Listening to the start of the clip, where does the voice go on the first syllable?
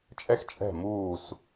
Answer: high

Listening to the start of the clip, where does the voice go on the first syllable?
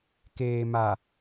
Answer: low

